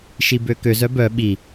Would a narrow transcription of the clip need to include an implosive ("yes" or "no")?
yes